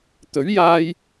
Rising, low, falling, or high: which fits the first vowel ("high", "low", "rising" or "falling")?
rising